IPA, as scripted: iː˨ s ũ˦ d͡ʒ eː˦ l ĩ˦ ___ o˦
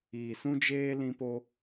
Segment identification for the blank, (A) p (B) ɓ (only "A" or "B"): A